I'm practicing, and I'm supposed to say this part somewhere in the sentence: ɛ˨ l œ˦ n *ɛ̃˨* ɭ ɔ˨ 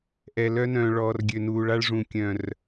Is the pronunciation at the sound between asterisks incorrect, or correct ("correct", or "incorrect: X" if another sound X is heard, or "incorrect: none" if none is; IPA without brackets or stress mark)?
incorrect: œ̃˨